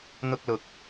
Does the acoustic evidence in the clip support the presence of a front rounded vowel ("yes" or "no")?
no